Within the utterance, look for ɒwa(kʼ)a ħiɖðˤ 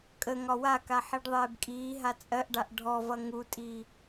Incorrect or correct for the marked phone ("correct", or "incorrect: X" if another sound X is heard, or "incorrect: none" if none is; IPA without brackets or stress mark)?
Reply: incorrect: k